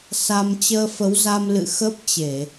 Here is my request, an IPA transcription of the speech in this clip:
s a˧ m t͡ɕ əː˧ f ə˨˦ w z a˧ m l ɨ̰˧˨ x ə˦˥ p̚ t͡ɕ e˧˩˨

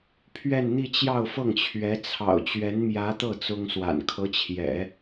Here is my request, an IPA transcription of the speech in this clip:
pʰ ɥ ɛ˥˧ n n̪ i˥˧ t͡ɕ j ɑ˥˧ ʊ̯ f ɤ˥˩ ŋ t͡ɕʰ ɥ ɛ˧˥ t͡sʰ ɑ̰˨˩ ʊ̯ t͡ɕ ɥ ɛ˧˥ n m j ä˧˥ t̪ ɤ˥˩ t͡s ʊ˥ ŋ s w a̰˨˩ n kʰ ɤ˧˥ t͡ɕʰ j ɛ̰˨˩˦

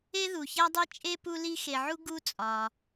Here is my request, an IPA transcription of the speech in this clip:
e˥ ð u˩ ç æ˥ dˤ e˥ t͡ʃʼ e˥ p u˦ l i˦ x e˨ ʕ u˥ ɡ u˥ t͡sʼ ɒ˨

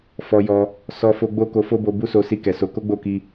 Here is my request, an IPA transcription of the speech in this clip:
f ɔ˧ j ɔ˧ | s ɔ˧ f o˧ ɡ͡b o˦ k o˧ f o˦ b o˧ b u˦ s o˧ s i˧ k ɛ˨ s o˨˦ k o˦ ɡ͡b o˦˨ k i˧

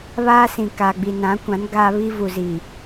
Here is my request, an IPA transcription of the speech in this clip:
β aː˦ s ĩ˨ k aː˨ ɡ͡b i˨ n ã˨˦ kʷ ã˨˦ n ɡ aː˦ β i˦ v u˨ z i˨

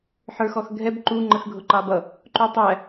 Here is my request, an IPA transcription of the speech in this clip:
ħ ə˞ x ɔ x ɡʱ ɛ b ǃ u ŋ͡ǃ ə x ɡʱ ʊ ǃ ɑ b ʌ | ǃ u tˤ æ

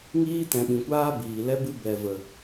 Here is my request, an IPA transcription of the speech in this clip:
ŋ iː˦ t ɛ̃˨ ɓ ĩ˨ kʷ aː˦ b iː˨ l ɛ˦ b ɨ˦ b ɛ˨ v ə˨

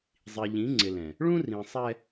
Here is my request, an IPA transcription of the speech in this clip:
zˤ i˨ ʎ ĩ˨˦ ŋ͡ǀ ɪ˨ l ɛ̃˨ | ɭ ũ˦ r ĩ˨ sˤ ɛ˦

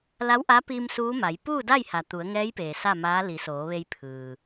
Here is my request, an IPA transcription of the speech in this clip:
l a˧˥ w ʔ a˧˥ p iː˧ m s uː˧˥ m a˩˧ j p uː˥˨ d a˥˨ j h a˩ t̪ u˩˧ ə̯ ŋ ɛː˧˥ j p eː˩ s a˥˨ m aː˧˥ l i˩˧ s oː˩˧ ʋ e˧ j pʰ ɯː˩

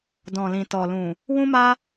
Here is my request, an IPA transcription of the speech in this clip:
d ɔ̃˨ l ĩ˨ t ɔ˨ l ũ˨ | w ũ˦ m a˦

